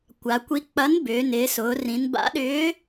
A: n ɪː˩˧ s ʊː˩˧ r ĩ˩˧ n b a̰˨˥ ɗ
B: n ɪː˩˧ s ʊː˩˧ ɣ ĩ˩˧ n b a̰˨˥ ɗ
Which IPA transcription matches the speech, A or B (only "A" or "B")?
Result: A